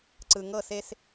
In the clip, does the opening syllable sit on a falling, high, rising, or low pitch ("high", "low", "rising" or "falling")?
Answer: low